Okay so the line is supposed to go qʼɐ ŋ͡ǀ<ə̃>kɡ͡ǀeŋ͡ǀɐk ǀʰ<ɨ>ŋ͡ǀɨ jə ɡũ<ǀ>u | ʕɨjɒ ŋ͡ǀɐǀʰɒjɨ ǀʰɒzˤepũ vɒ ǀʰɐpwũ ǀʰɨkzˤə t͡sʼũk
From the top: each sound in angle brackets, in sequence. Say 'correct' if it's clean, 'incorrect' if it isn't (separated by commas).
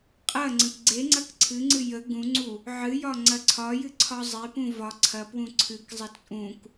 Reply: correct, correct, incorrect